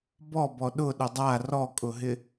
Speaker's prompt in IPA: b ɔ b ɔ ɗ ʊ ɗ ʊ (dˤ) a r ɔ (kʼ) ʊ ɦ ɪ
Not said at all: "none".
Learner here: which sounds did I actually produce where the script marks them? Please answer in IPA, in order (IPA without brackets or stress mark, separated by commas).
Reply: dˤ, kʼ